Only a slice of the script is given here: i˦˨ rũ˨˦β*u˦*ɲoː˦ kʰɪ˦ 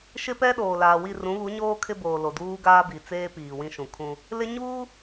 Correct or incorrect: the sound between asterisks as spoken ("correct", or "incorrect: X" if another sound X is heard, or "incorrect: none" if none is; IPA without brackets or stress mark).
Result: incorrect: u˨˦